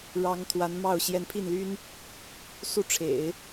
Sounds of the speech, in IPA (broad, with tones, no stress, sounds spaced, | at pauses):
ɻ ɑ˧˥ ŋ t̪ʰ w a˧˥ n m ɑ˥˩ ʊ̯ ɕ j ɛ˧˥ n pʰ i˥˩ n l y˥ n | s u˥˩ ʈ͡ʂʰ ḛ˨˩˦ ɪ̯